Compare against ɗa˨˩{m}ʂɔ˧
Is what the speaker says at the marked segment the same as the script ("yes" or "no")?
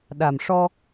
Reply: yes